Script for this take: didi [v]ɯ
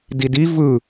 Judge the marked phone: correct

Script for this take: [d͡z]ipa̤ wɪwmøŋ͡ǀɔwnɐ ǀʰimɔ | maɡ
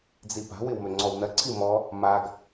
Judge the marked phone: correct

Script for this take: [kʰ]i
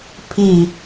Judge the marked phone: incorrect: pʰ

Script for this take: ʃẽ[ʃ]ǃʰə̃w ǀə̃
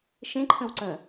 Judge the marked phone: incorrect: none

